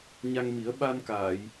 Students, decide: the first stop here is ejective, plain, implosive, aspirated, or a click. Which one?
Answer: implosive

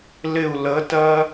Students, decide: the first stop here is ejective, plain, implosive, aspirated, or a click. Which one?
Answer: plain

